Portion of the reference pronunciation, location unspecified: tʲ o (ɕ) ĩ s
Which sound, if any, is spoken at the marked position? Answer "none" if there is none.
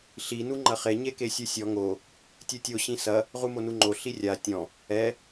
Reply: ɕ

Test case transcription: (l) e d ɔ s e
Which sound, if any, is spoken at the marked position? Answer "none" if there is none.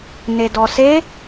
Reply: n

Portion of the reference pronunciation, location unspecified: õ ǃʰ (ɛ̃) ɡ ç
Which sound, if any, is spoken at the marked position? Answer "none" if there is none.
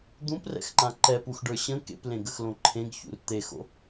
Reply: ẽ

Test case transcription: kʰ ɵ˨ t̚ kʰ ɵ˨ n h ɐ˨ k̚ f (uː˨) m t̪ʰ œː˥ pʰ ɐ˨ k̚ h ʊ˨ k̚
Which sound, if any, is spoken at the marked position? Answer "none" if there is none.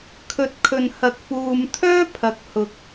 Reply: uː˨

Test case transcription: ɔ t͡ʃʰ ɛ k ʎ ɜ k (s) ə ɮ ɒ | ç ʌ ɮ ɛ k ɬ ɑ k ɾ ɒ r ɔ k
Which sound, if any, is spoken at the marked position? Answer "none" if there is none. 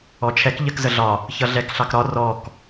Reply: z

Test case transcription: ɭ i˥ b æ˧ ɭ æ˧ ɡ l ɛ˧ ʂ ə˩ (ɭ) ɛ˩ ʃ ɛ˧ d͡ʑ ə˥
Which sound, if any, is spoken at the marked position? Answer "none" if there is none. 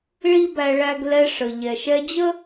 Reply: ʎ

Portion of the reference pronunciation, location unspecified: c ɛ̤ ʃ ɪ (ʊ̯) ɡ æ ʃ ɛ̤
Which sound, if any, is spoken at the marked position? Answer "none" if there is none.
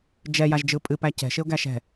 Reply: ʊ̯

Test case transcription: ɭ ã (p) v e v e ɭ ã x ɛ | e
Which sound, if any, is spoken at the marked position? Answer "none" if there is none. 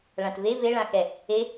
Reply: t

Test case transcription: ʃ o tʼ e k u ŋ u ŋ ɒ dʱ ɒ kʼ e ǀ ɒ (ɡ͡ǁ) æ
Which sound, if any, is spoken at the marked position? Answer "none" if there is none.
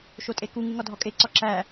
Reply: ǁ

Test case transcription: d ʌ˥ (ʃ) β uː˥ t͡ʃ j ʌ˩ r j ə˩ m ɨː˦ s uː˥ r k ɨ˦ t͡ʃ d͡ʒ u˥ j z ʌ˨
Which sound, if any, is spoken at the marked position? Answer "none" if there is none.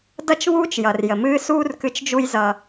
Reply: t͡ʃ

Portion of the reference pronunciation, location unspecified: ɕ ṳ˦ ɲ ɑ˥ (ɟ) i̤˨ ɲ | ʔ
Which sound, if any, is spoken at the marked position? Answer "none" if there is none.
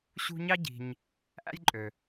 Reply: ɟ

